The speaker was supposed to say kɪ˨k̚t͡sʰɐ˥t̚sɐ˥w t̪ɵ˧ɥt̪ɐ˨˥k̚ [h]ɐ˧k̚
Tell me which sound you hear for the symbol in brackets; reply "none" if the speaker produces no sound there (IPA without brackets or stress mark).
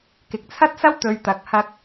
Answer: h